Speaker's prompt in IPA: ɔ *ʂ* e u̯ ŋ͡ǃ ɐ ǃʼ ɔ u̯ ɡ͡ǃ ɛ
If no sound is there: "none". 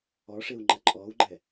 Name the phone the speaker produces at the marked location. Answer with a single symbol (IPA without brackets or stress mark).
ʂ